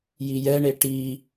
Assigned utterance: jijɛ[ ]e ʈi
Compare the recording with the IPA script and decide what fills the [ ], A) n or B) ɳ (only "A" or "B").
B